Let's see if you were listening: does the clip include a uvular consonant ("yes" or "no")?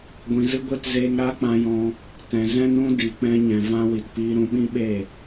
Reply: no